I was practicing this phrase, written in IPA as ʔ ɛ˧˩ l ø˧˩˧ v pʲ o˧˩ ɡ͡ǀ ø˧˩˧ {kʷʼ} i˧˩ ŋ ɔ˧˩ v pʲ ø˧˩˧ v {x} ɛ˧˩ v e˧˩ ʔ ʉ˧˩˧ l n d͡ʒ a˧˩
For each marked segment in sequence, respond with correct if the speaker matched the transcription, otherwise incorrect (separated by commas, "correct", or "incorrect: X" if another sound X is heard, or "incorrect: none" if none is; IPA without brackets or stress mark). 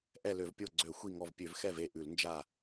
incorrect: xʷ, correct